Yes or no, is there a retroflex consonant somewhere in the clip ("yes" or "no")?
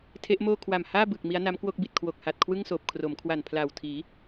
no